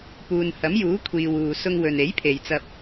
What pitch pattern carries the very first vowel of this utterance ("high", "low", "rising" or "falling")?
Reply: low